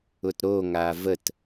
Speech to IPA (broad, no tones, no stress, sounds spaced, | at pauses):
ʊ t ɾ o ŋ a v ə t